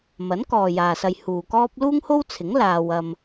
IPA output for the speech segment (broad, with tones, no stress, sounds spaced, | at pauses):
m ɐ˨˥ n k ɔː˨ j aː˨ s ɐ˧ j h uː˨ k ɔː˥ p̚ l uː˥ ŋ h o˥ w t͡sʰ ɪ˨˥ ŋ l aː˧ w ɐ˧ m